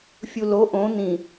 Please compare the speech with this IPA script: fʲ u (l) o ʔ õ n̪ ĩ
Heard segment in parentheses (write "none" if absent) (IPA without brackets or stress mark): l